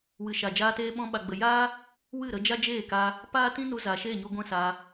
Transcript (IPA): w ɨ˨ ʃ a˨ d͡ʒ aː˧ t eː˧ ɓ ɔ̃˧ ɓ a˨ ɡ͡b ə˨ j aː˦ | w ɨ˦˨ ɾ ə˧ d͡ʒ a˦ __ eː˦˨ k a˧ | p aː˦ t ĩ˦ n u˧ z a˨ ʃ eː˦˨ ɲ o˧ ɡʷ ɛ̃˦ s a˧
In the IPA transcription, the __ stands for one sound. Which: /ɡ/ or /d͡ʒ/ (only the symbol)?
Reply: d͡ʒ